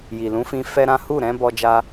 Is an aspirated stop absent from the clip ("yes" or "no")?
yes